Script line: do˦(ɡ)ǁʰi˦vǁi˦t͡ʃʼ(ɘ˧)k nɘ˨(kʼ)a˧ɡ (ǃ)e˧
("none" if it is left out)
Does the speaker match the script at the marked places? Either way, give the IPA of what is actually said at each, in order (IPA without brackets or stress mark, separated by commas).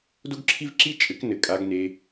ɡ, ɘ˨˦, kʼ, n